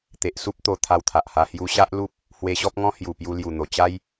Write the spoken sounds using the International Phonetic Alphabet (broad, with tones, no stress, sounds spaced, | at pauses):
t̪ e˨ ʔ s u˦ p̚ t̪ o˧ t̪ʰ a˧ w t̪ʰ a˨ ʔ h a˧ h j u˧ ɕ a˦ ʔ l u˦ p̚ | h w e˧ ɕ ɔ˦ p̚ ŋ ɔ̃˦ h j u˨˩ p j u˧ l j u˨˩ n̪ o˨˩ t͡ɕ a˦ j